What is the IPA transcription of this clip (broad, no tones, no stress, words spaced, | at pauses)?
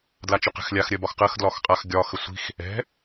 dlat͡ʃɵqɛ̤xlʲax ɾʲɜbɒxqɜx dlɒxqʼax ɡʲɒ xəsʷi̤x | ɛ̤